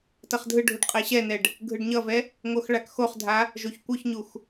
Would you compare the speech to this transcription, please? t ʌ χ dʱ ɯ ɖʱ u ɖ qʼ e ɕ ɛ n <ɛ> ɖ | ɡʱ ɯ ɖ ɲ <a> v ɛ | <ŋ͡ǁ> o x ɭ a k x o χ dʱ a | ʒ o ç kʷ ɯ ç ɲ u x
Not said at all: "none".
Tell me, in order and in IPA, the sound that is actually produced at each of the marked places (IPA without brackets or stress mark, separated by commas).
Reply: ɛ, ʌ, ŋ